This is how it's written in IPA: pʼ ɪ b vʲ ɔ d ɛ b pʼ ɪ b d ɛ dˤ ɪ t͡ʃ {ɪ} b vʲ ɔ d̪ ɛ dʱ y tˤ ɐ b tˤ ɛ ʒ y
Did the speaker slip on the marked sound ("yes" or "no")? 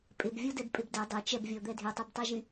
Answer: yes